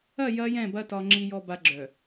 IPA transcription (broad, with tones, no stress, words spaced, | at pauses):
ɐ˦˨ jɐ˦jɛ̃˦˨bɐ˦ tɒ˨ŋ͡ǁi˨jɔ˨ba˨ ɡ͡ǁœ˨